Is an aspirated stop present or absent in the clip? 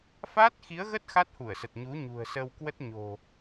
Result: absent